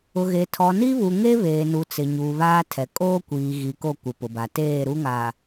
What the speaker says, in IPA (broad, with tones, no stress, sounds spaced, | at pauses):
ʊ˨ ɣ e˨ tʰ ɔ˨ n i˦ β u˨ ŋ e˦ β eː˨ n u˨ t͡s ɪ˨ ɲ uː˨ β aː˦ tʰ ɛ˨ kʼ oː˦ kʷ iː˨ ɣ i˨ k o˦˨ kʷ ɪ˨ p ʊ˨ b a˨ t eː˦˨ ɾ u˦ ŋ a˨